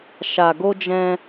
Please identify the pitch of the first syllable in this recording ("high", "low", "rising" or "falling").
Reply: low